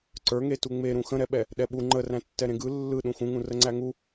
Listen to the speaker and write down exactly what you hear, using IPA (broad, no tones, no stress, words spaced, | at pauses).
ǀə˞ŋetu ŋ͡meɾũ xə̃ɾɛɓɛ | ɗɛɓu ŋ͡ǃə ræ̃tːɛɾẽɡɯ lːɯ ɗũxũŋũ rəŋ͡ǀæŋu